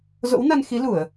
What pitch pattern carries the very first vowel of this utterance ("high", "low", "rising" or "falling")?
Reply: rising